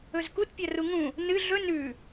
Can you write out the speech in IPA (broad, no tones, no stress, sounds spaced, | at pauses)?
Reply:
ɵ z k u t pʲ ɐ r u ŋ ũ | n ɨ ɮ ɵ n ʉ